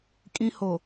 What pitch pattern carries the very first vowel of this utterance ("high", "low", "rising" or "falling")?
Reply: high